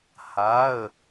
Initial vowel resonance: oral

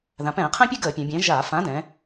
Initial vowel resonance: nasal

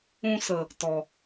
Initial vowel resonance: nasal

